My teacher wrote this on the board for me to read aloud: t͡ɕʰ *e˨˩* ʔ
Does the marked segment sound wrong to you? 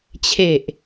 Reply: no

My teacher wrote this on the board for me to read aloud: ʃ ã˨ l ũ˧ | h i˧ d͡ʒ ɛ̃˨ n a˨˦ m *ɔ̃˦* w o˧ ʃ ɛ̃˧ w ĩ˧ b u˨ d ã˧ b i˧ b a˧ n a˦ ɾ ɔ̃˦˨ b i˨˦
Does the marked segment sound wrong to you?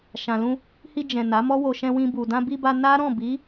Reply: yes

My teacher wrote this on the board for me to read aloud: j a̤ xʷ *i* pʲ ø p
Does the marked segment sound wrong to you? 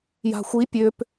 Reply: no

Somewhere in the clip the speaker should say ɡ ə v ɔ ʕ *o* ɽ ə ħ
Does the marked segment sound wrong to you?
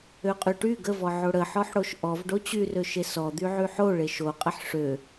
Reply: no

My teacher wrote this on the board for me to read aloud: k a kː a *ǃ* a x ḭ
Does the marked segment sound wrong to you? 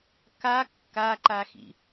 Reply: no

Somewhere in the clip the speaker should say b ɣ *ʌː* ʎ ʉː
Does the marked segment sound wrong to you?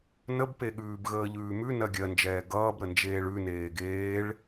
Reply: yes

